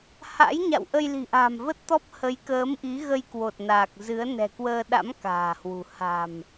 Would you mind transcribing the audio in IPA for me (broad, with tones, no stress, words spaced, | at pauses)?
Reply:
ha̰˧˥jɲa̰˧˨wʔə˧j li̤˨˩ʔa̤˨˩mvə˦˥t̚t̪ɔ˦˥p̚ hə˨˦jkəː˨˦mʔi˨˦ ɣə˧jkwo˨˩t̚ naː˨˩k̚zɨ˨˦ə̯ nɛ̤˨˩kwəː˧ɗa̰˧˥m ka̤ː˨˩hwṳ˨˩ ha̤˨˩m